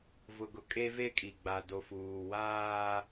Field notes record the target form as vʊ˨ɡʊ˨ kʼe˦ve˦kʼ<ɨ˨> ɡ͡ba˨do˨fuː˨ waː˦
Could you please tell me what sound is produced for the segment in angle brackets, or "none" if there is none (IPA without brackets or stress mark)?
i˨